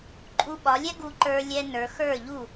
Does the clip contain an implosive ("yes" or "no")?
yes